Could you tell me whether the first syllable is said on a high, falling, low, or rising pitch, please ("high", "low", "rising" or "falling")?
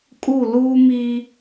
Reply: falling